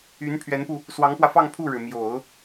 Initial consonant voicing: voiced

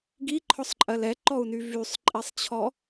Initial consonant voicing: voiced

